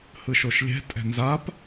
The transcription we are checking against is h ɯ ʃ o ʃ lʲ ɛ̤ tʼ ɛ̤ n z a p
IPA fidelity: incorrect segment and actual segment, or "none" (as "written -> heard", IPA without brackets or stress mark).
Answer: none